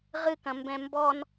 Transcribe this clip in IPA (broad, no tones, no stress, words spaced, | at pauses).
ʁɨkɐ̃mbɛ̃ mbɔn